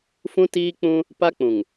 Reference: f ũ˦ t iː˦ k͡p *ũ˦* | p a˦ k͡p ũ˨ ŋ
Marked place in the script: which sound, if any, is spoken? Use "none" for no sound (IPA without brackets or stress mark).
ũ˦